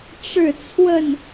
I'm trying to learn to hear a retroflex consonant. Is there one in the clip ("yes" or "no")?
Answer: yes